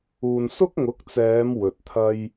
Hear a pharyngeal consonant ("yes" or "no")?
no